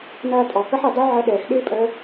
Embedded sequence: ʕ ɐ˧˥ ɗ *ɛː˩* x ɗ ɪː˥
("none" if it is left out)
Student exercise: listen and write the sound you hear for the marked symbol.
ɛː˩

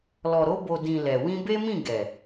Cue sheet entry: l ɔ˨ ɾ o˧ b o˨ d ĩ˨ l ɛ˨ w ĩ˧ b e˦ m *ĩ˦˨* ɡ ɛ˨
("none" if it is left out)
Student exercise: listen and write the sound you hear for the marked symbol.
ĩ˦˨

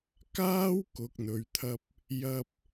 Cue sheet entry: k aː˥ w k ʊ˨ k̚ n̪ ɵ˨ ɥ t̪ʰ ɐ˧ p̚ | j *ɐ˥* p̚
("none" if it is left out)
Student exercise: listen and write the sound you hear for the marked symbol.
ɐ˧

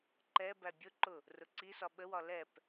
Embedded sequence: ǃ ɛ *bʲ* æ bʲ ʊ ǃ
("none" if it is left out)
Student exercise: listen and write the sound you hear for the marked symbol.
b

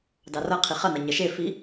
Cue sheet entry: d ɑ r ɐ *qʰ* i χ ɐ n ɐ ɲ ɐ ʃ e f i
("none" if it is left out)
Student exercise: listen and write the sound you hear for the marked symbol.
qʰ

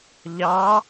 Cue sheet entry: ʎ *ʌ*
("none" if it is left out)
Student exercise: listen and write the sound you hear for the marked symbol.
ɑ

